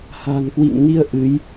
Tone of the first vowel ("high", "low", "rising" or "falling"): low